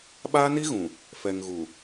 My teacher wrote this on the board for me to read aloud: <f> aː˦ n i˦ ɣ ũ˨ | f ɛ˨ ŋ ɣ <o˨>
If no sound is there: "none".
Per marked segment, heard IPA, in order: ɓ, u˨

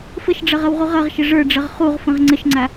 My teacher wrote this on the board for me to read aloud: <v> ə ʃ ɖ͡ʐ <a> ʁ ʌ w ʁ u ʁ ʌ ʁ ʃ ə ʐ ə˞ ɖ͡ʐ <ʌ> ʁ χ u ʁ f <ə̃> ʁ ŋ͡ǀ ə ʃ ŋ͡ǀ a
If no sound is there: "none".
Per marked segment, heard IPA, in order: f, ʌ, ʌ, ə̃

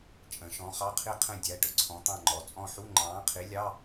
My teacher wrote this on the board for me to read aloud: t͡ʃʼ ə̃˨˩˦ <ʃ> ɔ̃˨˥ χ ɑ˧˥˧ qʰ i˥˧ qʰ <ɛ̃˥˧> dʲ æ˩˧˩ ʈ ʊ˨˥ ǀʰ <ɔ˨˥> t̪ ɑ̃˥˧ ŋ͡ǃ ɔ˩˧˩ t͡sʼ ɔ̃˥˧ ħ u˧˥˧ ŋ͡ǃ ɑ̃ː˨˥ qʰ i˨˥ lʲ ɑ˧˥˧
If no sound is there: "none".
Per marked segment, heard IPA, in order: ʃ, ɛ̃˥˧, ɔ̃˨˥

